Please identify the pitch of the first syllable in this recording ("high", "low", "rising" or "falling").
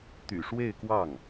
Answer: low